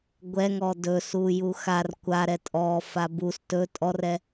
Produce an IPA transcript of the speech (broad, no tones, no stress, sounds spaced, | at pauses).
ɡʷ ɛ ŋ ɔ d ɵ s u j u x a r kʷ a ɾ ɛ tʼ ɔ f a b u s t ɵ tʼ ɔ r ɛ